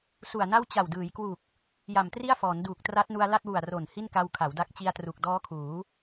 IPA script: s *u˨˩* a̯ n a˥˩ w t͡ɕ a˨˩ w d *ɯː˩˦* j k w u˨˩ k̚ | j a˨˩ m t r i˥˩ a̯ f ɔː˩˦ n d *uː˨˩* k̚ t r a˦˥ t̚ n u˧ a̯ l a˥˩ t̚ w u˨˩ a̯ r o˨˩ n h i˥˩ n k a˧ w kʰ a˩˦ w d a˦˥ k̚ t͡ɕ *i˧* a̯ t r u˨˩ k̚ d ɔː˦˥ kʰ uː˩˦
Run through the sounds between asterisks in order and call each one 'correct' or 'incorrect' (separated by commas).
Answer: correct, correct, correct, correct